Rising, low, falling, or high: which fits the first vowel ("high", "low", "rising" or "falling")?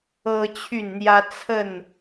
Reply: high